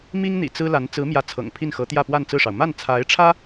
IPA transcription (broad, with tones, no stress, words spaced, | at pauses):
mi˥ŋ n̪ḭ˨˩t͡sɹ̩˥la˧˥n t͡sɹ̩˧˥mjä˧˥ t͡sʰɤ̰˨˩ŋpʰi˥˩nxɤ˧˥t̪jä˥˧ pwa˥˧nt͡sɹ̩˥˩ʂɑ˩ʊ̯ ma˥˩nt͡sʰa˧˥ɪ̯ʈ͡ʂʰä˥